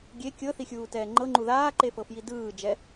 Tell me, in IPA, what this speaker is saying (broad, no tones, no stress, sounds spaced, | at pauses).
ɡʲ e kʲ ɤ θ i xʲ uː t ɛː ŋ͡ǃ ɤ ŋ͡ǃ u ð aː ǃ e f ɤ f j i d ɯː d͡ʒ ɛ